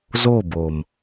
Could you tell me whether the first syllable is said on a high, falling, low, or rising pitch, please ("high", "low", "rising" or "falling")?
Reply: falling